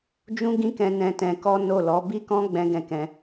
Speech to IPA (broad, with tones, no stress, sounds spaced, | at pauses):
d͡ʒ ũ˦ ɡ ĩ˦ k ɛ̃˧ n ɛ̃˧ t ɛ̃˧ k ɔ˦ n o˦˨ l ɔ˨˦ b i˦ k ɔ̃˦ ɡ͡b ɛ̃˦ ɡ ɛ̃˦˨ k ɛ̃˧